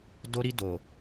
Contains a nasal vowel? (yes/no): no